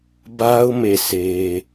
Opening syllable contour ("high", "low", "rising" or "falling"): high